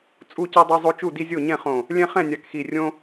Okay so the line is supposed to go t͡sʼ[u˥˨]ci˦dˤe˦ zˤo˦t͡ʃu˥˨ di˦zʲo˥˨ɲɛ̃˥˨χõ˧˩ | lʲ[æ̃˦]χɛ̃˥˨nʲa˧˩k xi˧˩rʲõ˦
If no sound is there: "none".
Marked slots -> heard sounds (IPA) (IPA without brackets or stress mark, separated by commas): u˥˨, ɛ̃˦